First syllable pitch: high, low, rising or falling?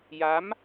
rising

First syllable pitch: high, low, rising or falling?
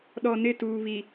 low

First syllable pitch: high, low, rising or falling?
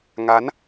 rising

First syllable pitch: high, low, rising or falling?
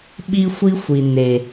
high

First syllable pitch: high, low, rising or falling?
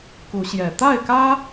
rising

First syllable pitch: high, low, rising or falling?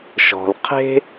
low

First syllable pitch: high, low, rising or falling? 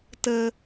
low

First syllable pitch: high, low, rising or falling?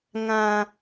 high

